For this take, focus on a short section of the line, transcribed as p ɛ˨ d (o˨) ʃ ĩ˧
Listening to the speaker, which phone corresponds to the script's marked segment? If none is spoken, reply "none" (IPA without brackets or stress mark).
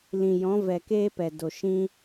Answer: o˨